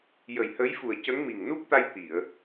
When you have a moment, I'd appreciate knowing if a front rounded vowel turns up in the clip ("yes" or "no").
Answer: no